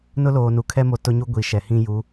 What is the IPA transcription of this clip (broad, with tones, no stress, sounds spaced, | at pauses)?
n ʊ˦ l oː˨ n u˨ kʰ ɛ˦ m o˨ t ʊ˦ ɲ u˦ ɡʷ i˨ ʃ ɛ˨ h ĩ˦ j u˨˦